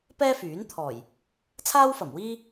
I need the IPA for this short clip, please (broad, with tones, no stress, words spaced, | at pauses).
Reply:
pɛː˥fyː˨˥n t̪ʰɔː˨˩j | t͡sʰaː˥wfɐ˨˩mwiː˥